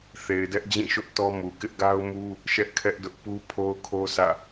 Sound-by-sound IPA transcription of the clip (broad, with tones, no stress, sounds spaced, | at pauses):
θ e˨ ɪ̯ d ɛ˦ ʔ d͡ʑ ĩ˦˨ ʃ ʊ˦ ʔ t ɔ˦ m u˨ k ɪ˦ ʔ ɡ a˦ ʊ̯ m u˦ | ʃ ɛ˦ ʔ kʰ ɛ˦ ʔ d ʊ˦ ʔ p u˦ pʰ o˦ ʊ̯ kʰ o˦ s ä̰˦˨